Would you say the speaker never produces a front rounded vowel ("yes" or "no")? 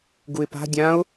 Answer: yes